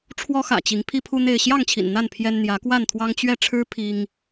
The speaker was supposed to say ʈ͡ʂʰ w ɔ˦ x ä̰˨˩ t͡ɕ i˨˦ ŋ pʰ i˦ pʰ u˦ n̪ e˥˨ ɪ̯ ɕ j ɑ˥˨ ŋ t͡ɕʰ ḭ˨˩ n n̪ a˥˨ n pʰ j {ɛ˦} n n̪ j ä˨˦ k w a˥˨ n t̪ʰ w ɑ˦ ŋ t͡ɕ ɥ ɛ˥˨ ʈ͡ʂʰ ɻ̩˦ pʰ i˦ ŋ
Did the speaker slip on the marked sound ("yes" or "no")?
no